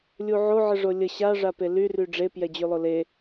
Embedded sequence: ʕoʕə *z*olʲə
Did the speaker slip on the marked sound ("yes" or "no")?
yes